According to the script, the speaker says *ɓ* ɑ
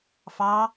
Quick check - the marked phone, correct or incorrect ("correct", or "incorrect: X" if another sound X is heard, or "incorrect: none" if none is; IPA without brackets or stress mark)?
incorrect: f